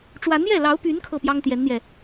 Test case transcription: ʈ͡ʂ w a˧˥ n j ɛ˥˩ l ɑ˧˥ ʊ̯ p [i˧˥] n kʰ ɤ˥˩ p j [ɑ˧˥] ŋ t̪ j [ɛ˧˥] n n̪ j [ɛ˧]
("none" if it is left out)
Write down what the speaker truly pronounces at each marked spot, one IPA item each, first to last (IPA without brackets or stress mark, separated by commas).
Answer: y˧˥, ɑ˥, ɛ˧˥, ɛ˧